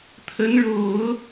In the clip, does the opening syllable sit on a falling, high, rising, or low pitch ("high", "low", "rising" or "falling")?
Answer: rising